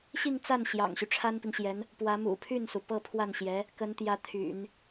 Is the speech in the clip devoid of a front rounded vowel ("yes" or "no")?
no